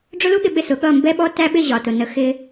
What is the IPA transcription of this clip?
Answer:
ɖ͡ʐʊ˦lu˦ɠɪ˧ ɓɪ˦˨sʊ˨˦ ɠʌ˦˨mbɛ˦ ɓɔ˦tæ˦ɓɪ˦˨ ʑɒ˨tʊ˨nə˧ xɪ˧

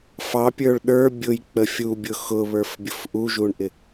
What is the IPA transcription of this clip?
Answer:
fɑpʲə˞ɭ ɗə˞ bʲʊjk͡pə fʲubʲʊ xʊβə˞fbʲʊf ʔuʒuɳʔɪ

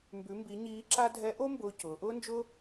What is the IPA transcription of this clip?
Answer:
mbʉ˩˧mbi˩˧ ɲiː˧˥ǁa˥ dʱɛ˧˥ʔo˥mbʊː˧ cʊː˩˧ʔʊː˥nd͡ʒʊ˥

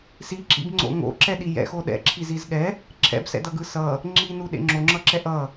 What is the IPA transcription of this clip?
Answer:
siǁḭbŋ͡ǀo̰ ŋo̰ǁɛɗi jɛ̰xo ɗɛ̰ǁʰiziz ɠɛ | ǁʰɛ̰bsɛ̰dʌɡɯ sʌ | ŋ͡ǁinuɗḛ ŋ͡ǁoŋ͡ǁʌǁɛʔ ʌ

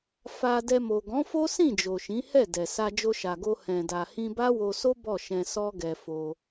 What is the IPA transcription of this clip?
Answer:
fa˧ dɛ˧mo˨ ɡɔ̃˨˦fo˦sĩ˦˨ d͡ʒo˨ʃĩ˨˦hɛ˦˨dɛ˨ sa˧d͡ʒo˧ʃa˨ɡo˧ hɛ̃˨da˨ hĩ˧ba˦wo˧so˦ bɔ˦˨ʃɛ̃˧ sɔ˦ɡɛ˧fo˧

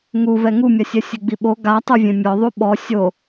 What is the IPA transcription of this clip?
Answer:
ŋu vɛŋumʲasʲɛ sʲeɡ͡biɓo ɡatˤuvʲẽ mʲɔðˤu ɓɔ sʲo

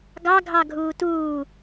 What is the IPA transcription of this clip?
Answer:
ɡɑ ɡʱɑɡʱuːtuː

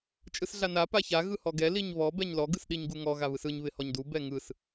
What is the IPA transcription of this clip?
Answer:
t͡ʃʼɯsɮana paça ɣɯhɔɡɛ liɲβɔ bɛɲlɔ ɡɯsɗiɲɡuŋɔ ɣaβɯsɯɲ βɪhɔɲdu bɛŋɯs

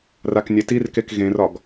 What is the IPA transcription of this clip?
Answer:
raknʲetirkek ɣẽrɒɡ

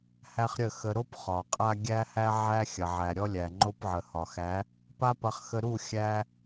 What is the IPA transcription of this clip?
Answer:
hæ˦χɾʲə˦˨xə˧ ɾo˦p χɒ˨qʼa˦ ɡʲæ˦hæ˦ ʕæ˧xʲɐ˨ʕæ˨ ɾʲɔ˧lʲæ˨ ŋ͡ǃo˧pʕə˨ hɒ˨xæ˨˦ | pa˦pɐ˧χ xə˧ ɾu˦˨ xʲæ˦

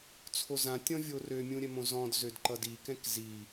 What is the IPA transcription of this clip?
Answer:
t͡sʰozã tʲɔ̃vʲorø mʲũɾʲɛmõzɔ̃d zødǃʌdi kɛ̃kzi

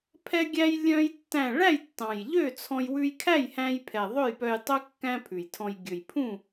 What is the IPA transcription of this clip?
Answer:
pʰɛ˥ɡʲæ˥j lʲœ̃˥jtːæ̃˥˨ ɭæ˥˨jtːɑ̃˨˩jʎø˥˨t͡sʰɔ̃˧j wʉ˧jkʰæ˥˨jhæ̃˧j pʰɛ˨˩ðˤɵ˥˨jpœ˧jtˤœ˥ kːæ̃˥pʰʉ˨˩jtʰɔ̃˧j ɡʲɵ˨˩jpʰũ˥˨

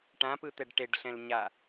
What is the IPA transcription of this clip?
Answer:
ʈãpɯt̪ɛɖ ʈeɖɬɛ̃l ɲa

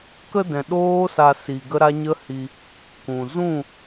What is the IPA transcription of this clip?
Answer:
kə˧dɛ̃˨ ɗoː˦sa˧ si˧ɡə˦ɾa˦ ɲə˦hi˧ | kũ˨zũ˦˨

